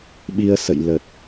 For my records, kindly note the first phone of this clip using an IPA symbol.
ɓ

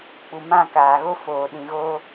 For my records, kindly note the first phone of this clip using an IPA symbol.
k͡p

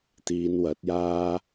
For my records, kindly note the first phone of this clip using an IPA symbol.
t̪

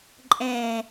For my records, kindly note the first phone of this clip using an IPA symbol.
ǃʼ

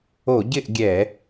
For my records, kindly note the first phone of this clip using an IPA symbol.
o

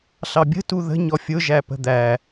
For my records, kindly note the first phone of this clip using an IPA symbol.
ɬ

